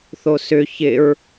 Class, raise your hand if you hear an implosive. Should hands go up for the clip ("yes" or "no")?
no